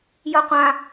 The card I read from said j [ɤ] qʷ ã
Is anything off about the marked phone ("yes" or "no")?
no